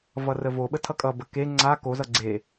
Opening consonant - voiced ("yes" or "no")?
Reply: yes